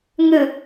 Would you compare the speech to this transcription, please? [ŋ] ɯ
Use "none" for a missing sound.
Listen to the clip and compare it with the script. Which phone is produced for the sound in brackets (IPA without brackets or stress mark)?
ŋ